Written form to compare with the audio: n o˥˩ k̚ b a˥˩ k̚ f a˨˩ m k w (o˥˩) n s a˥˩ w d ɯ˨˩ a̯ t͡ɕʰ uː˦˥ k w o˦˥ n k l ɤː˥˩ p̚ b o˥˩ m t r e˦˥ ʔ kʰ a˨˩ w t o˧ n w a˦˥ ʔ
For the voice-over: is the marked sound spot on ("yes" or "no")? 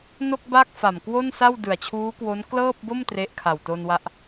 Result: yes